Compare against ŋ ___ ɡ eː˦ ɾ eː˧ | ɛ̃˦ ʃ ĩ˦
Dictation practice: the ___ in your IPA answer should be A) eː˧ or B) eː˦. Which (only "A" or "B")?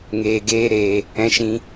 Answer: A